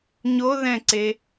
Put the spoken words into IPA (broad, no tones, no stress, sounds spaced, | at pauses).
ɲ o ð ɛ̃ ǀ e